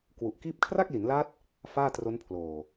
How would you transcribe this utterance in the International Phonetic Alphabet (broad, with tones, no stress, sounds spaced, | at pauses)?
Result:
k w u˨˩ ʔ k iː˥˩ p̚ kʰ r a˥˩ k̚ l i˩˦ n l a˦˥ t̚ | f aː˥˩ t r o˦˥ n pʰ l oː˨˩